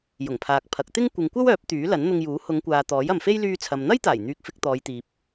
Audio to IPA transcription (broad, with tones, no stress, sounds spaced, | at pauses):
j ʊ˨˩ ŋ pʰ aː˨ k̚ pʰ ɐ˨˥ k̚ t̪ ɪ˥ ŋ kʷ ɪ˨˧ ŋ kʷ ɐ˥ w œː˨˥ p̚ t̪ yː˨˥ l ɐ˨˥ n n̪ ʊ˧ ŋ j uː˨˥ h ʊ˨˧ ŋ kʷ aː˨ t̪ ɔː˨˥ j ɐ˨ m f e˥ j l yː˧ t͡sʰ ɐ˨ m n̪ ɐ˥ j t̪ aː˨˩ j n̪ yː˧ k̚ f ɪ˧ k̚ t̪ ɔː˨˧ j t̪ iː˨ p̚